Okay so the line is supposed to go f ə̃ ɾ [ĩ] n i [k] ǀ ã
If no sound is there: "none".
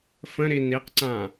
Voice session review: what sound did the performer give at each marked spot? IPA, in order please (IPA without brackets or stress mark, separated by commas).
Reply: i, q